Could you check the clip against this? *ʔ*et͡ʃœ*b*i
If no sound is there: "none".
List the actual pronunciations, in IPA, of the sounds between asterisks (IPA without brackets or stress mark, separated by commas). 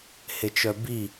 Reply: h, b